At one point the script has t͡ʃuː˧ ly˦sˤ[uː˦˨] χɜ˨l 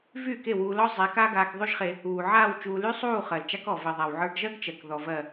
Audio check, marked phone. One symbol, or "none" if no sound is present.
uː˦˨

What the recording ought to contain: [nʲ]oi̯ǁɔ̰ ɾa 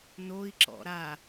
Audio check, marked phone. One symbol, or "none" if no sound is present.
n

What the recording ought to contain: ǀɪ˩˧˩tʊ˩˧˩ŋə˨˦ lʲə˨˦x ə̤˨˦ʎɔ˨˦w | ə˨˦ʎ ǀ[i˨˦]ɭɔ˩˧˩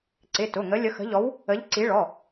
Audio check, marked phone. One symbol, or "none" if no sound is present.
i˨˦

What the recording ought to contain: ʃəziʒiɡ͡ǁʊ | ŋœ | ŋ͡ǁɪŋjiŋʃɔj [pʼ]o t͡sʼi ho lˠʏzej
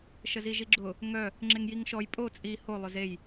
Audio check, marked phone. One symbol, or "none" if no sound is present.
pʼ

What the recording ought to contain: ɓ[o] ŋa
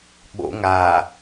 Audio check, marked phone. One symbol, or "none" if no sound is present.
o̰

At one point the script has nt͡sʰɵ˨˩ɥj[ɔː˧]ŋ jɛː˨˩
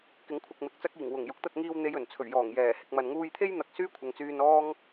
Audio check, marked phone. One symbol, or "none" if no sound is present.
ɔː˨˩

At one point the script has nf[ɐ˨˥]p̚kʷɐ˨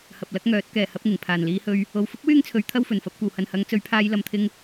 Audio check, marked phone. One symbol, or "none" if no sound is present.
ɐ˨˥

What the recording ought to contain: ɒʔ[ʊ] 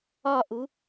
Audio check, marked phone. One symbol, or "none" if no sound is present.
u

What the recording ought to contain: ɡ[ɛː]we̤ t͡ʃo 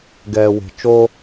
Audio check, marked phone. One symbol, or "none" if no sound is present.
ɛː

